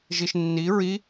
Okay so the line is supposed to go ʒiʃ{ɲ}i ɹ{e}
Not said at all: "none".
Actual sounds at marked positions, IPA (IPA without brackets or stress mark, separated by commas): nː, i